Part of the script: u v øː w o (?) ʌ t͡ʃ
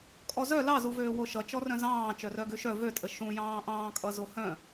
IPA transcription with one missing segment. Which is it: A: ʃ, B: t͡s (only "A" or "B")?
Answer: A